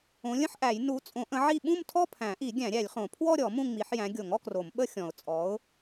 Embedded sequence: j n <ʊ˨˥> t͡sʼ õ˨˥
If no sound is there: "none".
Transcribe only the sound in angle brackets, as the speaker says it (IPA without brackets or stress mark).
u˨˥